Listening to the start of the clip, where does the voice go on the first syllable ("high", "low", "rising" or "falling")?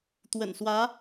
low